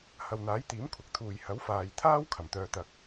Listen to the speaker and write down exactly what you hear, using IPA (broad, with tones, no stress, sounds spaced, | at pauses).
h ɐ˨ w n̪ aː˨˥ j t̪ iː˨˥ m kʷʰ ɐ˨˥ k̚ t̪ʰ uː˨ j h ɐ˨˥ w f aː˨ j t̪ʰ aː˥ w kʰ ɐ˨˩ m t̪ œː˧ t̪ ɐ˧ k̚